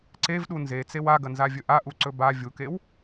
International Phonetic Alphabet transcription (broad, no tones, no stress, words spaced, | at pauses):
ǀevɗu nzet͡sew aɡɐnzavʲɵ ʔaʔuǀɵ ba vʲukew